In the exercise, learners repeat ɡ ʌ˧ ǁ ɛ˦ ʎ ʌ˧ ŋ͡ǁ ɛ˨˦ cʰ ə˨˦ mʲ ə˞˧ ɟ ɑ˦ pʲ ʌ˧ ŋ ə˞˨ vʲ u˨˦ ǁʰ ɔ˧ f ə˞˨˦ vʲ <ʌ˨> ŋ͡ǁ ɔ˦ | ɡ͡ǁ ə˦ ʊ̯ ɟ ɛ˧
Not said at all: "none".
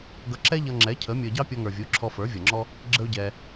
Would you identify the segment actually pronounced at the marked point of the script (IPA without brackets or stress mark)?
ʌ˨